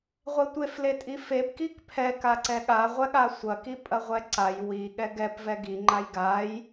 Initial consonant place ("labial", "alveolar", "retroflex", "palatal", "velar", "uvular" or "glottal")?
uvular